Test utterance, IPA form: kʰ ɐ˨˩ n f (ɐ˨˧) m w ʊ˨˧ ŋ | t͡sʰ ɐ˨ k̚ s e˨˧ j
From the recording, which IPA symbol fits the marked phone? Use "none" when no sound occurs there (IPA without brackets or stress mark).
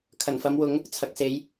ɐ˨˧